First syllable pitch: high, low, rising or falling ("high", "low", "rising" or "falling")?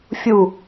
falling